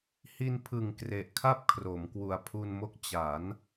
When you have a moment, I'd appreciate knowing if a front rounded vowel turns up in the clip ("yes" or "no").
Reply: no